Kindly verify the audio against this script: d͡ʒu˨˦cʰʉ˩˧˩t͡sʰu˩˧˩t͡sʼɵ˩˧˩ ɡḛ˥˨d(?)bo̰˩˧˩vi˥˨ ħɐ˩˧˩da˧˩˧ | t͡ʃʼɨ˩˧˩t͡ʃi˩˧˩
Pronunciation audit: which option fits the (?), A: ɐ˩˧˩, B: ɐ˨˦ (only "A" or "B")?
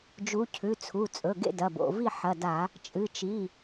A